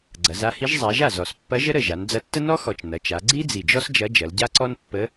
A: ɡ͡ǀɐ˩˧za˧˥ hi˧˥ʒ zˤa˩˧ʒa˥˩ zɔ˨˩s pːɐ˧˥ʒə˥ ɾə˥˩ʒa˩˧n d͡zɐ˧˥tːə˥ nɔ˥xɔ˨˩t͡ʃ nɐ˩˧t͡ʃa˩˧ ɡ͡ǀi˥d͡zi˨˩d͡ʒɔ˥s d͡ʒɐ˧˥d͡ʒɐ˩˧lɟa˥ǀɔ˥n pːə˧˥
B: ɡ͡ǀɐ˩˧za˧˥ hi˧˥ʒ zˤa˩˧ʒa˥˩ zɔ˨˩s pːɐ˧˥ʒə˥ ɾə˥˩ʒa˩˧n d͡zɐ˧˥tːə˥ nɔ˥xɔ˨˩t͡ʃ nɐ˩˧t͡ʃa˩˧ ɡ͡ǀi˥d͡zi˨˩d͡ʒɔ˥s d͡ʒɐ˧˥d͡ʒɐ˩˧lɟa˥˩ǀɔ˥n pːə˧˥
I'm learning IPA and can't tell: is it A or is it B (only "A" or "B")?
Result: A